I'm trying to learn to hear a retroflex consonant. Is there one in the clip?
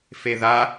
no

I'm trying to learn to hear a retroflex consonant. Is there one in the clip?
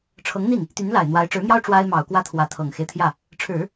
yes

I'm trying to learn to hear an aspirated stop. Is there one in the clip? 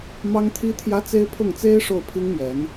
yes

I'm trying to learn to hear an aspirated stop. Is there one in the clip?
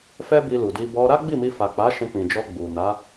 no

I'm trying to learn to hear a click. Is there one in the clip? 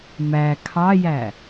no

